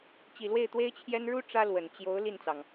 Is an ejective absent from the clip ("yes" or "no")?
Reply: yes